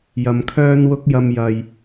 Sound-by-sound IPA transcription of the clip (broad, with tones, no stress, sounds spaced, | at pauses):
j ɐ˨ m kʰ œː˥ n w ʊ˥ k̚ j ɐ˧ m j ɐ˨ j